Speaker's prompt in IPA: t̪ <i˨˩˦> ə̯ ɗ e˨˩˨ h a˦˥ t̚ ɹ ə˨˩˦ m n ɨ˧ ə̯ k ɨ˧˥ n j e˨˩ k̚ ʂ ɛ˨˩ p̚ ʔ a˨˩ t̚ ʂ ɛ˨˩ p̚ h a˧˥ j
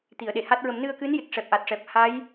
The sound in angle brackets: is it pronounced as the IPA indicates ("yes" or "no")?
no